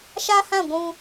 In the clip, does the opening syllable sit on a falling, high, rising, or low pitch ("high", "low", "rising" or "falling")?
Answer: high